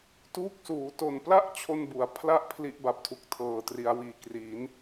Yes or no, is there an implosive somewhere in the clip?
no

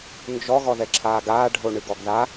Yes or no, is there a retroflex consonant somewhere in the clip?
yes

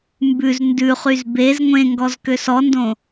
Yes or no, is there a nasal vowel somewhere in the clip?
yes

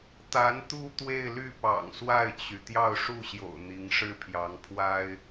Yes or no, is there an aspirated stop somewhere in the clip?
yes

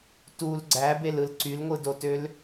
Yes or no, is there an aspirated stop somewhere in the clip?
no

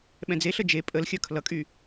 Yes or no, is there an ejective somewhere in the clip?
yes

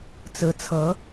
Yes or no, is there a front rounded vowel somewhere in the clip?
no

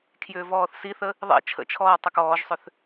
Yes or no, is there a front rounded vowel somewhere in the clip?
yes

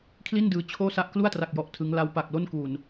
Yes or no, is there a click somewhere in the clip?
no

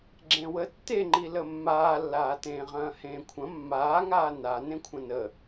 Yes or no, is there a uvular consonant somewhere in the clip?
yes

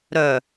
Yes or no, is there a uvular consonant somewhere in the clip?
no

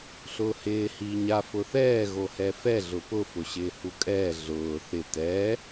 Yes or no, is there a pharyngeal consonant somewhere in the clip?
no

